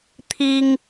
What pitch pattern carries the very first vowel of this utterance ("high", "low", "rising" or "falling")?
high